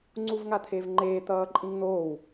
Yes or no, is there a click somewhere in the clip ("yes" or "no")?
yes